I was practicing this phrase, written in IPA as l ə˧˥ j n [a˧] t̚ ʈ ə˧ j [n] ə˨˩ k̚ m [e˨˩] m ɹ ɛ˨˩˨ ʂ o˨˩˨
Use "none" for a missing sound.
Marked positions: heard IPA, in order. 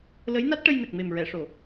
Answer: a˦˥, n, e˨˩

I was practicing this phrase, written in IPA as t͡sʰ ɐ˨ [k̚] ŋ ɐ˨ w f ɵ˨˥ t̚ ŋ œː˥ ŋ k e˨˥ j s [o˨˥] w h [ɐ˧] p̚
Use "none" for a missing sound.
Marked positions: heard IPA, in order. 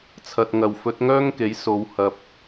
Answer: t̚, o˨˧, ɐ˧

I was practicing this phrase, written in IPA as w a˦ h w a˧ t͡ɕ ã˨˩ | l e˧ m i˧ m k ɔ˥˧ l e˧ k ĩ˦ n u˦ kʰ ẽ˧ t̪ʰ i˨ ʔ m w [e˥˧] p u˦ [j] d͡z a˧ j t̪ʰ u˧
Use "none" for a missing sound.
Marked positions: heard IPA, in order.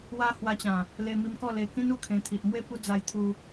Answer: e˥˧, none

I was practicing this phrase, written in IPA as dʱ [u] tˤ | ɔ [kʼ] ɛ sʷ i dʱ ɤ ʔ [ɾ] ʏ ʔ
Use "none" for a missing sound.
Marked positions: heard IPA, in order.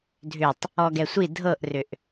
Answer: ʏ, ɡ, r

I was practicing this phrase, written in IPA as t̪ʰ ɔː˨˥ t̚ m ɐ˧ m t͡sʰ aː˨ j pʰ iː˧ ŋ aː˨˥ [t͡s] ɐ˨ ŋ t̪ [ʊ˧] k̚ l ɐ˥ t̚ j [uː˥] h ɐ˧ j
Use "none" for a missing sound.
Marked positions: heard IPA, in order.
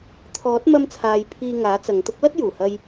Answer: t͡s, ʊ˥, uː˨˩

